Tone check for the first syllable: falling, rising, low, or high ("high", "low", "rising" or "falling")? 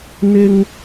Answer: high